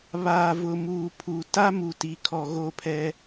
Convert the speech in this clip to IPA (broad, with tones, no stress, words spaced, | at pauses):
βaː˨vʊ˨muː˨pʰu˨ ta˦mu˨ti˨kʰɔ˨ ɣo˦˨pʰɛ˦